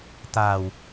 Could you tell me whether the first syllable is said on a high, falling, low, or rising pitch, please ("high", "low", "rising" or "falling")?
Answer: low